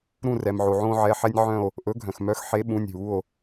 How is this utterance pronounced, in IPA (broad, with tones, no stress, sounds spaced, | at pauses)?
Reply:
ɾ ũ˦˨ r ɛ˩ m ʕ o˩ ʕ õː˦ ʕ ɛ˩˧˩ ħ ɛ˦ nʲ ʕ œ̃˦˨ o̯ | ʔ ɵ˨˥ ɡʱ œ̃˩ x m œ˨˥ x ħ e˨˥ ɓ ũ˩˧˩ nʲ ɦ u˩˧˩ o̯